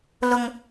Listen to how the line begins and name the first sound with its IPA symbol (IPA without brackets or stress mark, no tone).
l